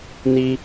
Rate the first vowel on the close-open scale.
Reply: close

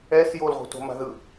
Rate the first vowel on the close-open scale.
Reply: mid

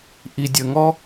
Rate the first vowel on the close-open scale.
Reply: close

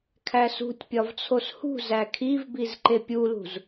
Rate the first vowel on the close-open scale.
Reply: open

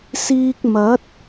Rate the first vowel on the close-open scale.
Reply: close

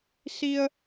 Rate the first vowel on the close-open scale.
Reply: close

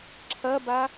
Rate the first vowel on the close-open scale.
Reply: open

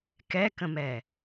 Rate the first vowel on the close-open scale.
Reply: mid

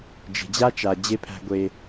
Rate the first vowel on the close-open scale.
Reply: mid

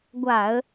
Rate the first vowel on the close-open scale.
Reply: open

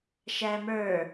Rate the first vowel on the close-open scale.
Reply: open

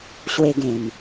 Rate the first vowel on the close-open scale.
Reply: mid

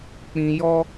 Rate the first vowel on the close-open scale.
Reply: close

